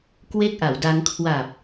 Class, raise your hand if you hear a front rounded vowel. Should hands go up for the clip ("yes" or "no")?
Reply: no